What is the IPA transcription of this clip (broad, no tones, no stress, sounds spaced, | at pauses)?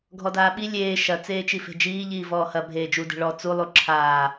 ɡʱ ɔ d aː ɓ i lʲ eː ʃ ɐ t͡s eː t͡ʃ i f e̤ d͡ʒ iː ʎ iː v ɔː h ɐ bʱ eː d͡ʒ u d e̤ ɭ ɔ t͡s u lˠ u ǁʰ aː